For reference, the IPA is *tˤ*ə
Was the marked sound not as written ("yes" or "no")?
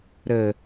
yes